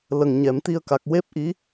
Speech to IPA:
l ə˨˩ ŋ ɲ ɛ˨˩˨ m t̪ i˧ ə̯ k a˨˩ k̚ w e˦˥ p̚ ʔ i˧˥

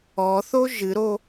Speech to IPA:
ɔ θ o ʒ ɨ ɾ o

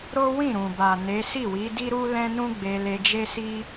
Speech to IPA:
ɾ o˦ w ĩ˦˨ ɾ ũ˨ b a˨ n e˨˦ s i˦˨ w i˨˦ d i˦ ɾ u˦ l ɛ̃˦ n ũ˦ ɡ͡b e˧ l e˧ d͡ʒ e˦ s i˦

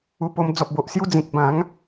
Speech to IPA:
u˧ p o˧ m d͡z ɔ˨ p̚ b o˨ ʔ s j u˧ d͡z ĩ˨ k̚ b ã˨˦ ŋ

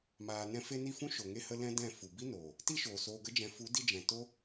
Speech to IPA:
m aː˨ n ɛ̃˦ f e˦ n i˦˨ f ũ˦ ʃ o˨ ŋ e˧ h ə˧ l ɛ̃˦ d ɛ̃˦˨ f u˨ b i˦ n oː˨ | t i˦ ʃ oː˨ s oː˧ ɡ ə˦ d͡ʒ ɛ̃˧ f u˨˦ d i˧ d͡ʒ ɛ̃˨ t o˦

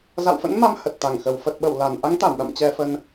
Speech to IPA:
z a̰˧˨ w f ə̰˧˥ n m a˧ m h ə˨˩ t̚ t̪ a˧˩ ŋ x ə˨˩ w f ə˨˩ t̚ ɓ ə˧˩ w l a˨˩ n ʔ a˨˦ ŋ t̪ a˧˩ m ɗ a̰˧˨ m t͡ɕ ɛ˧ f ə˧ n

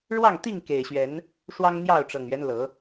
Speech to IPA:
ɻ w ɑ˥˨ ŋ t̪ i˥˨ ŋ k e˨˩ ɪ̯ ɕ ɥ ɛ˨˦ n | ʂ w ɑ˦ ŋ n̪ j ɑ˥˨ ʊ̯ ʈ͡ʂ ɤ˨˩ ŋ ɥ ɛ˦ n l ɤ˨˦

